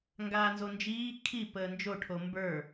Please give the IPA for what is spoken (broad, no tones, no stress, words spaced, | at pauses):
ŋɡaːnzond͡ʒiː kʰi pəːnd͡ʒo ʈʰombə˞